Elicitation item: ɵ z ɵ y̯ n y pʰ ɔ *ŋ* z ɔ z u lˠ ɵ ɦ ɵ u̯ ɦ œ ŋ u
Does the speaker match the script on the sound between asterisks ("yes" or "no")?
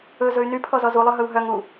no